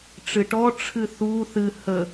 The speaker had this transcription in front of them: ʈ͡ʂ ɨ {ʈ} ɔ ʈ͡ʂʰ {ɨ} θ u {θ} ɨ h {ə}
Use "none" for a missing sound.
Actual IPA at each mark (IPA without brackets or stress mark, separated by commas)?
ʈ, ɨ, θ, ə